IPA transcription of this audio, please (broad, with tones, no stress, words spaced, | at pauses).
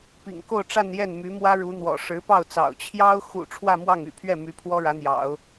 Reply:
pḭ˨˩ŋko˥˧ʊ̯ ʈ͡ʂa˥˧njɛ˥˩nmy˧˥mwä˥ ɻu˧˥n̪wɔ̰˨˩ ʂɻ̩˧˥pɑ˥˩ʊ̯t͡sɑ̰˨˩ʊ̯ t͡ɕʰjɑ˥ʊ̯xṵ˨˩ ʈ͡ʂʰwä˥˧mwɑ˥˩ŋy̰˨˩pʰɥɛ˥˩ my˧˥pʰwɔ˥ɻä˧˥n̪jɑ̰˨˩˦ʊ̯